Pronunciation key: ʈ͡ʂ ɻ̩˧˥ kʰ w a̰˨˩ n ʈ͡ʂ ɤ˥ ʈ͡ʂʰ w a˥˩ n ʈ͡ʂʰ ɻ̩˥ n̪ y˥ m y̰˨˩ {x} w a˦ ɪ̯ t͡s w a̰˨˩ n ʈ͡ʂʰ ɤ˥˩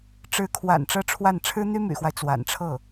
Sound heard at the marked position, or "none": x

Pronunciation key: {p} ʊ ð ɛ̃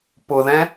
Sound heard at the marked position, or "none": p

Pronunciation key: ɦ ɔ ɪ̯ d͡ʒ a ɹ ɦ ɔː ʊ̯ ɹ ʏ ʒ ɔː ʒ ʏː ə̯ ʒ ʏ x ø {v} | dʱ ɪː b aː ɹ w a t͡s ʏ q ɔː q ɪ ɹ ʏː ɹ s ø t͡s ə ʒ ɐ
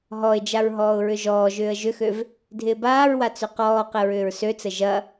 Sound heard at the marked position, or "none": v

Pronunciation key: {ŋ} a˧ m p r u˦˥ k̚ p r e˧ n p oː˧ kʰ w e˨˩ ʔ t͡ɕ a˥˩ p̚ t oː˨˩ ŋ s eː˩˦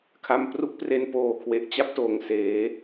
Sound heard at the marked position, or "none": kʰ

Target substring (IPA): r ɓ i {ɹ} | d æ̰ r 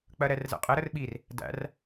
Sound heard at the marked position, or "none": r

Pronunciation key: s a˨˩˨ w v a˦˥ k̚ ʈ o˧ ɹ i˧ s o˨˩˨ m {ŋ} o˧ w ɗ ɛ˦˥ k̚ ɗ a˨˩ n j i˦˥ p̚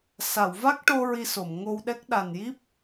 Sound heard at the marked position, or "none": ŋ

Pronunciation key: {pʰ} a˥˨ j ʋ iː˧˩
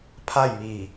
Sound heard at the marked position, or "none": pʰ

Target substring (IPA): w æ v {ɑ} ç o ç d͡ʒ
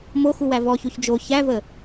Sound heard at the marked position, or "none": ɔ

